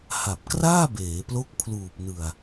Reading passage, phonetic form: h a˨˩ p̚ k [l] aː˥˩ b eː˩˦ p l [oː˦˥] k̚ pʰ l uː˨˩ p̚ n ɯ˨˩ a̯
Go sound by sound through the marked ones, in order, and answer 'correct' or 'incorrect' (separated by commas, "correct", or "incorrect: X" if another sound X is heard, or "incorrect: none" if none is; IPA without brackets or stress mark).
incorrect: r, incorrect: o˦˥